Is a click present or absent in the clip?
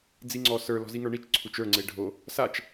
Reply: present